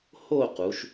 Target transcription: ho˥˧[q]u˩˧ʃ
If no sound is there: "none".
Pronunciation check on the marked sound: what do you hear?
q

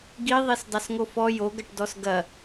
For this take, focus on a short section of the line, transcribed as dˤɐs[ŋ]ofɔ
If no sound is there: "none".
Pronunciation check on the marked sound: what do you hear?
ŋ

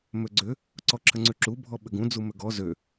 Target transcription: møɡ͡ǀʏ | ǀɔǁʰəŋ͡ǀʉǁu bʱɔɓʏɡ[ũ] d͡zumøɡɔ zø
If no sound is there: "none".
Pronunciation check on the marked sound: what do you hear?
ũ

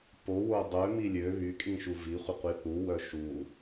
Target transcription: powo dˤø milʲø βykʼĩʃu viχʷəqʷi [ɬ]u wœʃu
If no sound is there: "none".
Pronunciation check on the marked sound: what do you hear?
θ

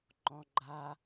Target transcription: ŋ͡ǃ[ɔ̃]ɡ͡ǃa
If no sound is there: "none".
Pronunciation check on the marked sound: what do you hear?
ɔ̃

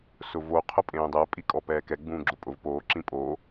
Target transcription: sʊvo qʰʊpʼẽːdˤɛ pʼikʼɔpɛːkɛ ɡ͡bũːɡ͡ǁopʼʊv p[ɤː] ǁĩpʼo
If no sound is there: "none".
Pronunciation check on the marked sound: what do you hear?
oː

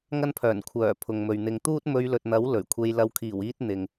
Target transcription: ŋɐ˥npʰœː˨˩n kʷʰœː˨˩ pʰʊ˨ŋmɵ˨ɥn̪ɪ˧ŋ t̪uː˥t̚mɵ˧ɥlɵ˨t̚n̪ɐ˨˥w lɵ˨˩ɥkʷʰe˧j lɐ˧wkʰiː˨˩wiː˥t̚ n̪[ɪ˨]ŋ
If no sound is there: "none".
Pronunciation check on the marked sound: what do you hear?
ɪ˨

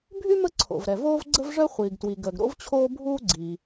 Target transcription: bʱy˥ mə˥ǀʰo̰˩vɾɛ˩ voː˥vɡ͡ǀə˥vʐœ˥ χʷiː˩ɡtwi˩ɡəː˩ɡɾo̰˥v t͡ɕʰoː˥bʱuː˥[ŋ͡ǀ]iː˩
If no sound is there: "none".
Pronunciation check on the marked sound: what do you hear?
ɡ͡ǀ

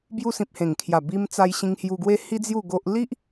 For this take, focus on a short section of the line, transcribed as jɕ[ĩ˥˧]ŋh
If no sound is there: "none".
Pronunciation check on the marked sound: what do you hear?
ĩ˧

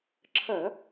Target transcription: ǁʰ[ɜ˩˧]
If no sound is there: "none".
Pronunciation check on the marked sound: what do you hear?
ɜ˧˩˧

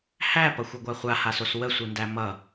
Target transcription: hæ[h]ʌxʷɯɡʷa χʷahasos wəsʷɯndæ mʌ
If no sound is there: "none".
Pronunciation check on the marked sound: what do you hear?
p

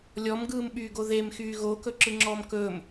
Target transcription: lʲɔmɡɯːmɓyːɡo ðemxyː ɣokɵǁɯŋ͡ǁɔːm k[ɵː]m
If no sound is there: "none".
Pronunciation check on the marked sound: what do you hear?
ɵː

